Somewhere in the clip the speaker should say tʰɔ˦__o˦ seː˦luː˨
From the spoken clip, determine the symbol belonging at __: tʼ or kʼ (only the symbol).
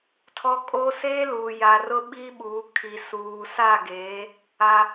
kʼ